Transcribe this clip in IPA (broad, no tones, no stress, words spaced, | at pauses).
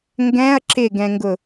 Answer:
ŋɡɛ̃ɐ̯ ǁɪɡɛ̃ŋɡʊ